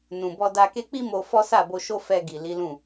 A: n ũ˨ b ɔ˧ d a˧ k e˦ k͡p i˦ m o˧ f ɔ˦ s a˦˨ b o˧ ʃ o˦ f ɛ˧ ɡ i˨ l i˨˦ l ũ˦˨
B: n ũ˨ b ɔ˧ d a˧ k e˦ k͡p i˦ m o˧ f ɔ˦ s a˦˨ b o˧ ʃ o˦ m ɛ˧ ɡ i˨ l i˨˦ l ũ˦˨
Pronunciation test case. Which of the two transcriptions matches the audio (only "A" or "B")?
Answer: A